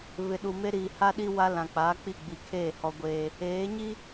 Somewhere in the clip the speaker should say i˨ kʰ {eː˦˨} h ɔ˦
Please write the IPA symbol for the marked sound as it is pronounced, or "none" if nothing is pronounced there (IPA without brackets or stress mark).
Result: eː˦˨